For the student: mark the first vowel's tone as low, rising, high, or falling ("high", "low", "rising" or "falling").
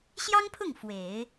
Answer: high